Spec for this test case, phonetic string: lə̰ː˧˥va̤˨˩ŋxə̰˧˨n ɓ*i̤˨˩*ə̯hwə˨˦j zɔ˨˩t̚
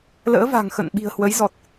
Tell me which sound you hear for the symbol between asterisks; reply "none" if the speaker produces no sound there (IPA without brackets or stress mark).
i̤˨˩